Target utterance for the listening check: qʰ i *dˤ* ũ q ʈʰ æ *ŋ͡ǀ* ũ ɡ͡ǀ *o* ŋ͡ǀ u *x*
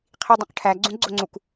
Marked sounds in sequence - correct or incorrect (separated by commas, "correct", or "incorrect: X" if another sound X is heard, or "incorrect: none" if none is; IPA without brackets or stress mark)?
correct, incorrect: ɡ͡ǀ, correct, incorrect: k